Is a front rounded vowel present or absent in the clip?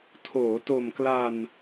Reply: absent